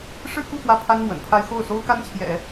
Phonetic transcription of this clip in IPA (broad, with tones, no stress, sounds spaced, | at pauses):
ʂ ɻ̩˥˧ k u˥˧ f w ä˥˩ pʰ a˥ n m w ə̰˨˩ n pʰ a˥ ɪ̯ x o˥˩ ʊ̯ s o˥ ʊ̯ k a˥ n t͡ɕʰ j ɛ̰˨˩˦